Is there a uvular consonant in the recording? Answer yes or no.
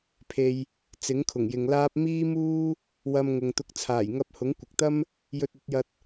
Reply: no